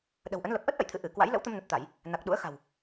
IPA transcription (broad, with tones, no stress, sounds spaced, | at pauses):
ɗ ə̤˨˩ w ʔ ə˨˦ n l ə˨˩ p̚ ʔ ə˦˥ t̚ ʔ ə̰˧˨ j t̪ʰ ɨ̰˧˨ ʔ ɨ˧˩ k w a̰˧˥ j l ə̰˧˥ w t̪ ə˧ m n ə˨˩ t̚ t̪ a˧˩˨ j | n a˨˩ k̚ ɗ ṵ˧˥ ə̯ x a̤˨˩ w